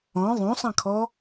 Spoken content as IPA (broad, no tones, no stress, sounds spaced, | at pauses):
ɔ̃ ðˤ õ sˤ ã kʰ ɔ